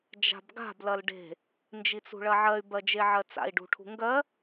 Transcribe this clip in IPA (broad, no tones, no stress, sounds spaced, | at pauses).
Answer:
d͡ʒ a̤ b ɡ a̤ b l ɐ l ɖ e̤ | n d͡ʒ i t͡s ṳ ɭ ɐ ʕ ɜ y̯ b ɜ d͡ʒ e ʕ ɜ t͡s a̰ i̯ ɖ ṳ ʈʰ ṳ ŋ ɡ ɜ